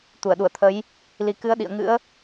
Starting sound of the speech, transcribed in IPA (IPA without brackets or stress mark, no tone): t̪